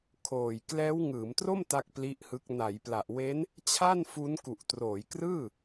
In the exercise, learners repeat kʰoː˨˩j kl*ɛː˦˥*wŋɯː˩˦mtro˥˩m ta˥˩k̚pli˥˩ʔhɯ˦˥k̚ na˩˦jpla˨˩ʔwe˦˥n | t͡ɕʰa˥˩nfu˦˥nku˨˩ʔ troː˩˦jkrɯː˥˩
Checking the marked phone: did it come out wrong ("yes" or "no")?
no